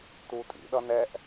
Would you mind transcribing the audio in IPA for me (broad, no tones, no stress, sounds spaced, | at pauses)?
t u tʼ ḭ ɗ ʌ n ɛ ʔ